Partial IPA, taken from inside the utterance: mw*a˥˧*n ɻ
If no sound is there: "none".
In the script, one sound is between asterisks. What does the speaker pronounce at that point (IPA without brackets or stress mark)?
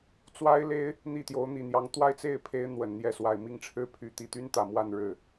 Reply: a˥˧